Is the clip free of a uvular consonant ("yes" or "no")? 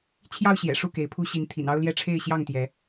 yes